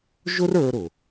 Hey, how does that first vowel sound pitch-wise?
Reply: high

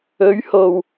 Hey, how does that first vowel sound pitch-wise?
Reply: rising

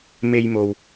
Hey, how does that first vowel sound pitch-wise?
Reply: high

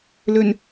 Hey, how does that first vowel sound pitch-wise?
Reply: low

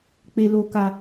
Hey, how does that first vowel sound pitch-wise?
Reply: low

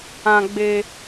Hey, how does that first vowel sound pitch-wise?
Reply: high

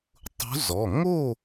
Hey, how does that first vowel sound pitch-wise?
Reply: rising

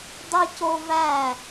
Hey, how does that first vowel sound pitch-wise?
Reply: high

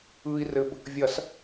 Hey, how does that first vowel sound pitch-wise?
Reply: low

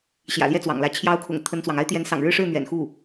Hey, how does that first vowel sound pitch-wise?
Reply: low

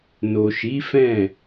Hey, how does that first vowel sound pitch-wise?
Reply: low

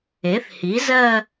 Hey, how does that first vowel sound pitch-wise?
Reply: rising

